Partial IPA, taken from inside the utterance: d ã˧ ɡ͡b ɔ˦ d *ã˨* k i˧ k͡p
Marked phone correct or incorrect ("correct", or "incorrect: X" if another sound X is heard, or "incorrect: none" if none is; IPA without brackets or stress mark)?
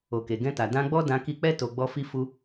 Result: incorrect: ã˧